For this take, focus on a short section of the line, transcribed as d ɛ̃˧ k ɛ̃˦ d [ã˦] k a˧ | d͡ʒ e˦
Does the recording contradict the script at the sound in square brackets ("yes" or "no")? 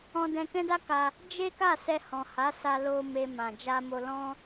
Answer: yes